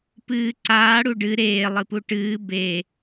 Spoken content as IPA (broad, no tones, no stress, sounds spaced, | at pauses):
p ɨː ǀ aː ɽ u ɖ ɨ ɾ eː lˠ ɨ p u ʈ ɨː b e